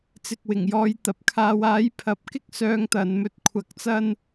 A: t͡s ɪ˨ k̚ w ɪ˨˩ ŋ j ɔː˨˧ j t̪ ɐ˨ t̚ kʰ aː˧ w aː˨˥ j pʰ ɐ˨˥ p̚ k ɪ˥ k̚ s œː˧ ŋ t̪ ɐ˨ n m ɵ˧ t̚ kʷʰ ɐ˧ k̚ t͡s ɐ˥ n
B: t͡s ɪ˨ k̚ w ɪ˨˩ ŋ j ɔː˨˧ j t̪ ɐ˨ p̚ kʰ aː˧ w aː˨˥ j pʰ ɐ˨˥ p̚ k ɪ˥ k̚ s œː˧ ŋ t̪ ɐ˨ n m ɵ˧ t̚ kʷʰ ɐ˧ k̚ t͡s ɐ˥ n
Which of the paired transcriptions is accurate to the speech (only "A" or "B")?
B